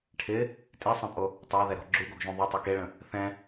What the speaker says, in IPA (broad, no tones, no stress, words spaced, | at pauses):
ʈʰɪ | tʼisˤẽpʼo | tˤaðɛɾɔ̤ ɡ͡ǁuɡoɡʒũ ðˤøtˤe keɭə̃ | θɛ̃